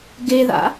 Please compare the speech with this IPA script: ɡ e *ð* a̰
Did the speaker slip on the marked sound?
no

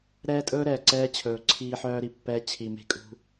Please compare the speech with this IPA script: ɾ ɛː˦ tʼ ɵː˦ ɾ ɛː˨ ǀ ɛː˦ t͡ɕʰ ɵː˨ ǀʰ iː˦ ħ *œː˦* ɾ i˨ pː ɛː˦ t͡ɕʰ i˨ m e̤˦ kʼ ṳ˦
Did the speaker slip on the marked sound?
no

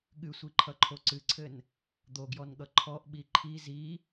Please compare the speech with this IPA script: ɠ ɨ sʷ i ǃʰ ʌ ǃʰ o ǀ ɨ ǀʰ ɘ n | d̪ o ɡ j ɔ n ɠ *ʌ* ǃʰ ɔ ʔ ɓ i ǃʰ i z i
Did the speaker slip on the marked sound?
no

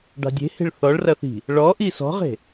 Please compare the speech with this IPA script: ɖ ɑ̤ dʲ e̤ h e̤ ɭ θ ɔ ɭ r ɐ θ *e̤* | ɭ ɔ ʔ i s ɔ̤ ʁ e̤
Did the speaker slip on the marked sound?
yes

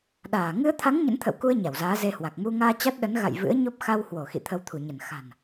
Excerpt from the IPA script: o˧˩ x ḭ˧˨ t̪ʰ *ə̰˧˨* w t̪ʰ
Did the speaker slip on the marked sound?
yes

